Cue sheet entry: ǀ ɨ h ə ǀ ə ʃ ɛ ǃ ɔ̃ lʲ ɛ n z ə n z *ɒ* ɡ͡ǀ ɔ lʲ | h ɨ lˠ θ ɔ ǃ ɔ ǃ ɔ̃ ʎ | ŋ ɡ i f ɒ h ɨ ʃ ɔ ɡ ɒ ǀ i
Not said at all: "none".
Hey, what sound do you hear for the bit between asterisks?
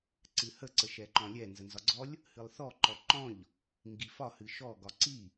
ɒ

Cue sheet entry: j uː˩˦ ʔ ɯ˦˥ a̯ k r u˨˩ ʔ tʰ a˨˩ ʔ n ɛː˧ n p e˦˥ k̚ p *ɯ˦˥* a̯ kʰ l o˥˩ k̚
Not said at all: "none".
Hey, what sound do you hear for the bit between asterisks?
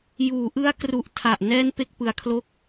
ɯ˦˥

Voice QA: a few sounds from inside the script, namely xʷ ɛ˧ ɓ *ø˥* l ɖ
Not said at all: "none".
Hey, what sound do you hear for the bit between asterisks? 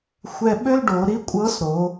ø˥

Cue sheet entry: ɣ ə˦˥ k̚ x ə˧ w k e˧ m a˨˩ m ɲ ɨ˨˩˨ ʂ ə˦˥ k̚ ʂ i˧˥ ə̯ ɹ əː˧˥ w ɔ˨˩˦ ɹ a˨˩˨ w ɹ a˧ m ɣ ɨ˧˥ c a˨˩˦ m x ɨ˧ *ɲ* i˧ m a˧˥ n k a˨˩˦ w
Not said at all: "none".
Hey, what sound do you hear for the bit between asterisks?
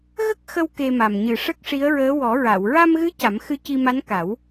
c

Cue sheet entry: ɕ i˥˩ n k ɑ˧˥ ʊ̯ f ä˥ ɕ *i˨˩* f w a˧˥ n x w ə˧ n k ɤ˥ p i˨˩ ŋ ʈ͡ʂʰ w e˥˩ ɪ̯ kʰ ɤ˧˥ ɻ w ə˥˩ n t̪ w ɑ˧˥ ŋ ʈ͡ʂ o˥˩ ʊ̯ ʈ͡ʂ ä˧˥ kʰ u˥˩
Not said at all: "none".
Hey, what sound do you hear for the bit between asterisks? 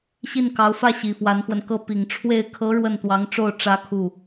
i˨˩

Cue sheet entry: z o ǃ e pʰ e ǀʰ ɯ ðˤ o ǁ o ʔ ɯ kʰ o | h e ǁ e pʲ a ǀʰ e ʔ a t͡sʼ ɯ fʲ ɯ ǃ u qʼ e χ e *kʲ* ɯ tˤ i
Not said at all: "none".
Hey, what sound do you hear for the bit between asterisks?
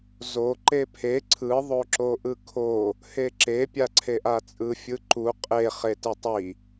t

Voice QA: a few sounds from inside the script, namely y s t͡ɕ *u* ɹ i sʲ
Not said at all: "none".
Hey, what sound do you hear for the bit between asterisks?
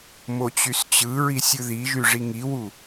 ɯ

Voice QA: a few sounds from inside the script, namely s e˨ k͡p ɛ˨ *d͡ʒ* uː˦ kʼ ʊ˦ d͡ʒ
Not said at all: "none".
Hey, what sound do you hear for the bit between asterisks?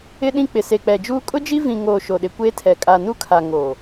d͡ʒ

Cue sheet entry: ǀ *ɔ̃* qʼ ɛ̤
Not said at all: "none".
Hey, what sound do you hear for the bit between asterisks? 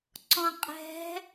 ɔ̃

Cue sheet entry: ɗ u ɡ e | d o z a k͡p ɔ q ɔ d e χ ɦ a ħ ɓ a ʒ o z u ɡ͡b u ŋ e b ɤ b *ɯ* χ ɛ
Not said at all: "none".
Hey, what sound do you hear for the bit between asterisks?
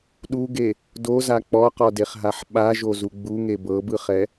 ɯ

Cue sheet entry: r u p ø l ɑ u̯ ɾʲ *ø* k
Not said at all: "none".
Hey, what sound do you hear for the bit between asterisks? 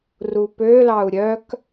œ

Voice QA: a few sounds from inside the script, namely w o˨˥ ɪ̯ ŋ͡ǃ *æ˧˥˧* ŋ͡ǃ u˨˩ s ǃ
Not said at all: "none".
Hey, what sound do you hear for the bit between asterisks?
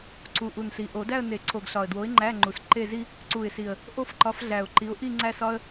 æ˧˥˧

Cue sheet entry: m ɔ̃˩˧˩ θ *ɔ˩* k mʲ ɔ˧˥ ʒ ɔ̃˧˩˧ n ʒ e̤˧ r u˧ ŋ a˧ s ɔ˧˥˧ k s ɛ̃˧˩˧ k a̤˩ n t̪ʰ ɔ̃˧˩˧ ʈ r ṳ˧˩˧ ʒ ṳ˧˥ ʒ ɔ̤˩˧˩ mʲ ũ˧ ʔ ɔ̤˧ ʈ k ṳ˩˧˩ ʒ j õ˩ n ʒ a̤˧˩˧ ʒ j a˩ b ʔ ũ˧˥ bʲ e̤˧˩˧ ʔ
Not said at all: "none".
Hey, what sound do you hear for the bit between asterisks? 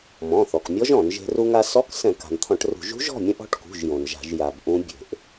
ɔ˩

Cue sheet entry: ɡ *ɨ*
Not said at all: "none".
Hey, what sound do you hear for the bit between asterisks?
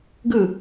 ɨ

